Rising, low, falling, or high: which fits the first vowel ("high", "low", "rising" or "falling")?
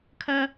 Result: high